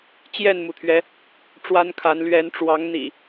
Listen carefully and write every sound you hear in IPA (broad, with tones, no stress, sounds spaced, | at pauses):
t͡ɕ j ɛ˥˨ n m u˩ t̪ʰ ɥ ɛ˨˦ | ʈ͡ʂ w a˦ n kʰ a˨˦ n l ɥ ɛ˨˦ n ʈ͡ʂ w ɑ˨˦ ŋ n̪ ḭ˨˩